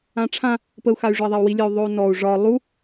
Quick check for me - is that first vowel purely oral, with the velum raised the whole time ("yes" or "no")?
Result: no